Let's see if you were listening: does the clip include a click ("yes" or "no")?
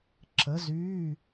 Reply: yes